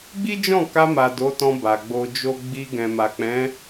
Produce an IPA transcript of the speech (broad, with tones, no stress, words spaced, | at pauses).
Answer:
ɡ͡bi˦d͡ʒɔ̃˦˨ka˧ma˨ do˨˦tɔ̃˧ ba˨ɡ͡bo˧d͡ʒo˦ ɡ͡bi˧ ɡɛ̃˨ma˨k͡pɛ̃˨˦